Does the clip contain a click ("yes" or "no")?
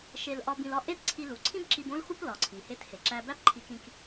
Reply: yes